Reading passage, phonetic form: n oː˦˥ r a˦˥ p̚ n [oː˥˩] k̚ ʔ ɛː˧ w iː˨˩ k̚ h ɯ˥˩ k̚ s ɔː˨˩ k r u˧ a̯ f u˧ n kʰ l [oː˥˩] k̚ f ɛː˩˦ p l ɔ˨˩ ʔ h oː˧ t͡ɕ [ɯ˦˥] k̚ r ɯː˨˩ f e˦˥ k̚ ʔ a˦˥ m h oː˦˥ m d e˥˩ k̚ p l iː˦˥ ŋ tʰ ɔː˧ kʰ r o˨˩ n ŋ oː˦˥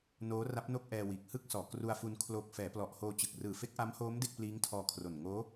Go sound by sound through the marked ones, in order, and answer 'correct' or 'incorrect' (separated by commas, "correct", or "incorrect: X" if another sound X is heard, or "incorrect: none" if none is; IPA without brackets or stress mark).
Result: incorrect: o˥˩, incorrect: oː˨˩, incorrect: ɯ˨˩